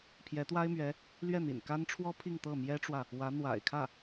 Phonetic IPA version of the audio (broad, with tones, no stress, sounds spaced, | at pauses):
pʰ j ɛ˧˥ t̪ w a˥ ɪ̯ m ɥ ɛ˧˥ | l ɥ ɛ˥˩ n̪ ḭ˨˩ n k a˥ n ʈ͡ʂʰ w ɔ˥ pʰ i˥˧ ŋ t̪ ɤ˥˩ m j ɛ˥ ʈ͡ʂ w ä˨ | w ä˧˥ n̪ w a̰˨˩ ɪ̯ kʰ ä˥˩